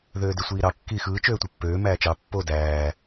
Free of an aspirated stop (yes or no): yes